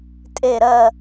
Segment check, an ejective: present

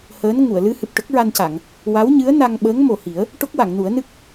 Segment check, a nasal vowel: absent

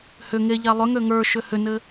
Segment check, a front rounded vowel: present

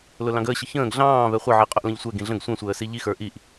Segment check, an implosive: absent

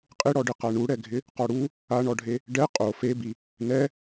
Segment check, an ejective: present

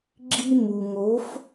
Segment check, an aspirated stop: absent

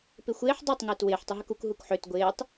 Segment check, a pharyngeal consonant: present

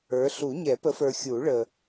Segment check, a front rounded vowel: absent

